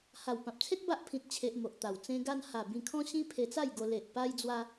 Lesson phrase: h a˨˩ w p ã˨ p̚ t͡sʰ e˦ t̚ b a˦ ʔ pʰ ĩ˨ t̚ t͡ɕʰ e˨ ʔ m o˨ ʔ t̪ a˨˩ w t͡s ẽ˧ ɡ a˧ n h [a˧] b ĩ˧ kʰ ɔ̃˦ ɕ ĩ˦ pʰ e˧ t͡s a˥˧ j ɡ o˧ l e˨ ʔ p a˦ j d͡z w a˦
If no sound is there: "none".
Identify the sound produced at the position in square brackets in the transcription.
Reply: a˨˩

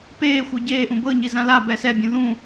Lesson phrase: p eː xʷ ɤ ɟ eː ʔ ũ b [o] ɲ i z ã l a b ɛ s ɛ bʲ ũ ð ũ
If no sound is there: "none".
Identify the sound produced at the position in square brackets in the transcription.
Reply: ɤ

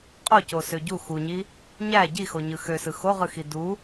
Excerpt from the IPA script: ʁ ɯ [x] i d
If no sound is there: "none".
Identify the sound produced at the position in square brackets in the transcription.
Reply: x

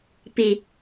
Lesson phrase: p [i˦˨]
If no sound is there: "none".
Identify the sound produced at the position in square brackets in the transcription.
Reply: i˨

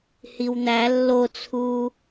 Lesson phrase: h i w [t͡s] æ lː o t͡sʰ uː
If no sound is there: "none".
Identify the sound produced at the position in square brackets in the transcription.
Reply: n̪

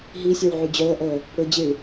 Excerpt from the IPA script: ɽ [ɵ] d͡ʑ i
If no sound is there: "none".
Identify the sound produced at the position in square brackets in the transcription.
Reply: ɵ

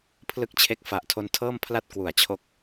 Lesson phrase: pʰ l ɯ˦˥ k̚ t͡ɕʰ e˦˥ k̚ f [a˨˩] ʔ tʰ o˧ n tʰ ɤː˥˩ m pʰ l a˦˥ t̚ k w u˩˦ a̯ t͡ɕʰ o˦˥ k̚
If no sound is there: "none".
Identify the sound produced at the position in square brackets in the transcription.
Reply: a˨˩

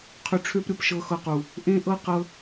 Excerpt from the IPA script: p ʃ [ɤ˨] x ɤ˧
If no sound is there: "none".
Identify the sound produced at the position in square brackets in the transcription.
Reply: ɤ˧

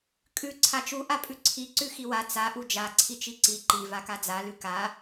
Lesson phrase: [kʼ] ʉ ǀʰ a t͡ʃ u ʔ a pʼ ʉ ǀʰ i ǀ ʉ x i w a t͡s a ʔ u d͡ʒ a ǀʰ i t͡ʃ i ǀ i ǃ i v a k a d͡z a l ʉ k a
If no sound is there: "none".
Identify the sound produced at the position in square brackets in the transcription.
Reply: kʼ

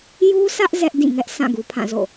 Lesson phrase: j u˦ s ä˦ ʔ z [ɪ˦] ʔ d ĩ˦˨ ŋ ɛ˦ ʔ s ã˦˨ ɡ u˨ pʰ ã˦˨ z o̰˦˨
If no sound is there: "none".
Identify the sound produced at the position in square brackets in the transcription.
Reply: ɛ˦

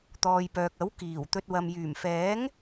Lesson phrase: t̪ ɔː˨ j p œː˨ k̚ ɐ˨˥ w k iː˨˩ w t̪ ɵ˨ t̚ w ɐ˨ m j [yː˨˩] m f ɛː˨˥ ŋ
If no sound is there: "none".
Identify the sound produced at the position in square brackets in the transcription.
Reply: yː˨˩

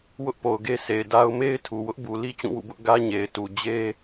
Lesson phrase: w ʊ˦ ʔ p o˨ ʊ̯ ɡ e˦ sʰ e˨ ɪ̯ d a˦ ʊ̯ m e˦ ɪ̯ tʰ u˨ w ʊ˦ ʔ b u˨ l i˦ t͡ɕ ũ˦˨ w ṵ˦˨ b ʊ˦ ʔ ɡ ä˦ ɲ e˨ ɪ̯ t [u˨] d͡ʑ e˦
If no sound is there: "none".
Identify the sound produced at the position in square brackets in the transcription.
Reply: u˨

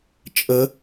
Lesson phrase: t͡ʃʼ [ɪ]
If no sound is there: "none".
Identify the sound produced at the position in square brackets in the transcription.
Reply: ə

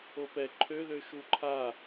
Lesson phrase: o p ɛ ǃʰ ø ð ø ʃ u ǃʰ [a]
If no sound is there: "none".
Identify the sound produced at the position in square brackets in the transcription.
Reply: a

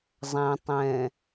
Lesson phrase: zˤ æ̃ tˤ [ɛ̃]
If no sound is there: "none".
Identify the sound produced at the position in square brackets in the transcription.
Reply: ɛ̃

